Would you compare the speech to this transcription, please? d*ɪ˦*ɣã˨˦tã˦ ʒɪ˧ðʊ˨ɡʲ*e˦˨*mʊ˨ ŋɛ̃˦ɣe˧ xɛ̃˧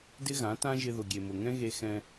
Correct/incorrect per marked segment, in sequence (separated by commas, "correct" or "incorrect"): correct, incorrect